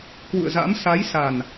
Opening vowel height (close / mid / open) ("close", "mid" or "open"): close